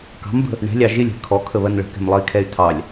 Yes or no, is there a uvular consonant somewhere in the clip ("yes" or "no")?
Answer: no